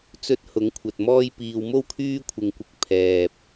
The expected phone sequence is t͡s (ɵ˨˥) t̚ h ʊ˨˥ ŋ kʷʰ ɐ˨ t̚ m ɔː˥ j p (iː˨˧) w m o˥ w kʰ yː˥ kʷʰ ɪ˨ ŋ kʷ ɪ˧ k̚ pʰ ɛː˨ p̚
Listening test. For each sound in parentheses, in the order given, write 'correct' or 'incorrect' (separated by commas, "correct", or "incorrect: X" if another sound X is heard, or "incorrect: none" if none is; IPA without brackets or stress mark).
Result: correct, incorrect: iː˧